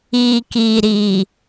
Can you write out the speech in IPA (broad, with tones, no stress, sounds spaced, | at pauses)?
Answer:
iː˨ k iː˨ ɾ iː˨